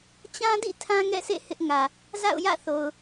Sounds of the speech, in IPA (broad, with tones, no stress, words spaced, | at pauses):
t͡ɕã˦dḭ˦˨ tʰã˦ŋɛ̰˦˨sḛ˦˨ hɪ˦ʔŋä˨ | za̰˦˨ʊ̯jä̰˦˨θo˨ʊ̯